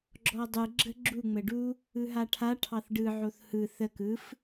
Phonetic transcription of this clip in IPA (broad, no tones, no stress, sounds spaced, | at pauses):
ɡ͡ǁ ɔ dˤ ɯ ɡ͡ǁ ə ɡ͡ǁ u ŋ͡m ə ɖ u | ɯ ɦ a ʈʰ a ʈʰ ɑ θ ɖ ɯ ʕ o θ h ɯ θ ə k ɯ f